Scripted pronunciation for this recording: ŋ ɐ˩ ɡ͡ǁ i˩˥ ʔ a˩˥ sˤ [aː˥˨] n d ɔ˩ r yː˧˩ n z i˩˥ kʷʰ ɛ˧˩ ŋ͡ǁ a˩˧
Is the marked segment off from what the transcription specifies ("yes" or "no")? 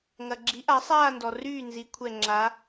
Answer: no